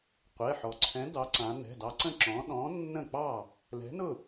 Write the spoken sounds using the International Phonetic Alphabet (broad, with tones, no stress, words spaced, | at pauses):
qʷɛ˩˧˩ħɔ˩˧ǀʰɛ̃˨˥ dɑ˨˥ǀã˩˧ nɛ̤˩˧˩dɑ˨˥ǀə̃˥˩ ǁɔ̃˨˥ ɗɔ̃˨˥nːə̃˥˩k͡pɑ˥˩ | lɛ̤˨˥nʊ˥˩